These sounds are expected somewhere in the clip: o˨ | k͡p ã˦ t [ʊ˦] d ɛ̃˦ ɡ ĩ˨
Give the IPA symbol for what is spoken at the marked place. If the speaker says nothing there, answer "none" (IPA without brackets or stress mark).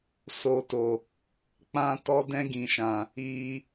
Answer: ɔ˦